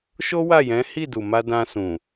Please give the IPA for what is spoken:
ʃ o˦ w a˦˨ j ɛ̃˨˦ h i˦˨ d u˨ m a˧ d ã˧ s ũ˨

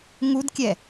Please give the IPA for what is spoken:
ŋ u d kʲ ɛ

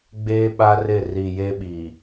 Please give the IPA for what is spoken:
ɡ͡b eː˦ ɓ a˦ r ɪ˦˨ r i˨ j e˦ ɓ i˨

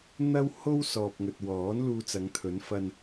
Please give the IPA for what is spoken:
n̪ ɐ˥ w h o˥ w s ɔː˨ p̚ ŋ ɵ˨ t̚ w ɔː˨˥ n l uː˧ t͡s ɐ˨˧ ŋ t̪ʰ ɵ˨˥ n f ɐ˧ n

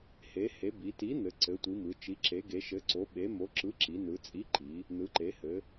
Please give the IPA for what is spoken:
h e˩˧ h e˩˧ b i˩˧ t i˨˥ n̪ ɘ˩˧ ǀ ɘ˩˧ tʷ i˩˧ m ɯ˩˧ t͡ʃ i˩˧ ǁ e˩˧ ɡ e˩˧ ʃ ɘ˨˥ ǀ o˨˥ ɓ e˨˥ m o˨˥ ǁ ɯ˨˥ ǁ i˩˧ n ɯ˩˧ t͡sʼ i˨˥ ǃ i˩˧ | n ɯ˩˧ ǃ e˩˧ h ɘ˩˧

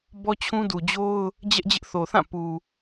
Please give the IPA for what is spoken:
b ɔ˦ t͡ɕʰ ũ˦ d u˨ d͡ʑ o˦ ʊ̯ | d͡ʑ ɛ˦ ʔ d͡ʑ ɪ˦ ʔ θ o˨ θ ã˦˨ p u˨

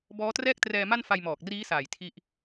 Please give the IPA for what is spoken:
b ɔː˦˥ t r ɛː˥˩ k̚ t r ɛː˧ m a˥˩ n f a˧ j m ɔː˨˩ k̚ r iː˦˥ s aː˨˩ j tʰ i˥˩ ʔ

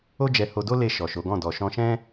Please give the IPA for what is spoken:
o˦ d͡ʒ ɛ˧ h o˧ d o˦ l e˧ ʃ ɔ˨ ʃ o˨˦ ɡ ɔ̃˦˨ d ɔ˨ ʃ ɔ̃˧ ʃ ɛ̃˦

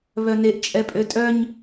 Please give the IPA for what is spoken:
β œ n e ʔ t͡ʃʼ ɛ pʼ ø tʼ œ ɲ

